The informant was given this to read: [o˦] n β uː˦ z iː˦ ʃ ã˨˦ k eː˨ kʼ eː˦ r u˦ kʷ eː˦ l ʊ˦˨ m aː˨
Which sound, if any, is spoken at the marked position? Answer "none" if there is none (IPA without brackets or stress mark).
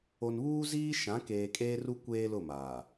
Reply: o˨